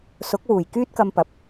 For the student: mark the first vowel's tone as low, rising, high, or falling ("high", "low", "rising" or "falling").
rising